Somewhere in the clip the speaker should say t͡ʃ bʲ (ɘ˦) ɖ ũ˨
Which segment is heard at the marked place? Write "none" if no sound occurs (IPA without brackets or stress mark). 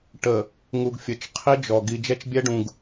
ɛ˦